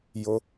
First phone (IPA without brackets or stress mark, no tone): j